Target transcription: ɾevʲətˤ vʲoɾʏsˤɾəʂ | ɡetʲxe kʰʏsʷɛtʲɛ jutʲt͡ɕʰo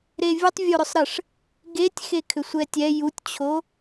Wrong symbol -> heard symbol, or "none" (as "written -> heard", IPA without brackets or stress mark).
none